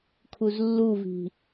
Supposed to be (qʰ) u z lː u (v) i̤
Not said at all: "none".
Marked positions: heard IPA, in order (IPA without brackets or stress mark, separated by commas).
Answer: kʰ, v